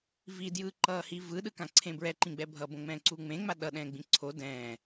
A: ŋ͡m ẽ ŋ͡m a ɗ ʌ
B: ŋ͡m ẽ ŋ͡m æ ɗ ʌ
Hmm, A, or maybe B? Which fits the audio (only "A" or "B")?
A